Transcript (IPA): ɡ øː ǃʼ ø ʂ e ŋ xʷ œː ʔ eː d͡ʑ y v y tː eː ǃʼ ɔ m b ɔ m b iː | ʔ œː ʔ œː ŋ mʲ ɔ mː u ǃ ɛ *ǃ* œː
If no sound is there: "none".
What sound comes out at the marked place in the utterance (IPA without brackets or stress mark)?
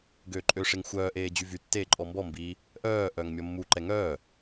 ŋ